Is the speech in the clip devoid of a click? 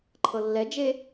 no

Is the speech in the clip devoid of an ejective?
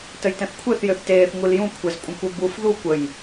no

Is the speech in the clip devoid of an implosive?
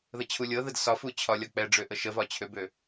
yes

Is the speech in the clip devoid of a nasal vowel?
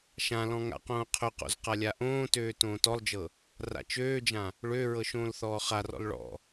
no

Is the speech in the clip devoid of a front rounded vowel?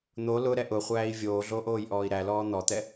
yes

